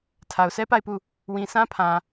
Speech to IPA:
tʰa˨ʊ̯sʰɛ˦pa˦˨ɪ̯pu˦˨ | wĩ˨sʰã˦pʰã˨

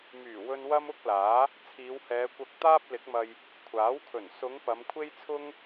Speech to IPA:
myː˨˩wɵ˧n wɐ˥mʊ˥k̚laː˨˥ | t͡sʰiː˨˧whɛː˨˧kʷɐ˧k̚ t̪aː˥p̚lɪ˨˥k̚mɐ˧j | kʷʰaː˨˥wkʰɵ˨˩n sʊ˨˧ŋ pɐ˨˧mkʷʰe˥jt͡sʰʊ˥ŋ

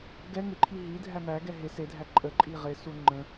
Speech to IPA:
ɡɛ ŋɪǃʰi ɦi dʱæmæɡɛ ɦɪ sedʱæ ǃʼə ǃʼiʁɪsu ŋ͡ǃə̃

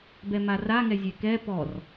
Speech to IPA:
bɛmara ŋɛzʲɛkɛ pɔr

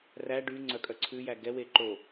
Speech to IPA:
ræ ɖy ŋ͡ǀœkʼœ ǀʰʉ jæɡɛwe ǃo

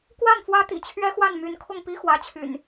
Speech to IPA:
kwa˥˨nfwä˦ t̪ḭ˨˩t͡ɕʰɥɛ˦ xwa˥˨nmy˨˦nkʰʊ˥˨ŋ pi˦xwä˨˦t͡ɕʰy̰˨˩n

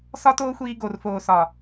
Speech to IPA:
sɒ˦toː˦xʷiː˧ ɡo˨rfoː˨sɒ˨

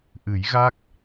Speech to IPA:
ʔɨ˨˩˦jɣa˦˥k̚

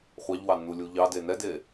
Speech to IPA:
χʷɑʎwɑnːulʲu ʎɑde nɛde

